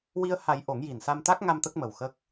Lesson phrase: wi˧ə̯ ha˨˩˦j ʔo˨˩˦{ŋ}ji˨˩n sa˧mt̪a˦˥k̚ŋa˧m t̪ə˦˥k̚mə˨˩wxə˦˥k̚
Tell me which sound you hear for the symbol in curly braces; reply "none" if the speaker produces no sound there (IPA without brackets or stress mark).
ŋ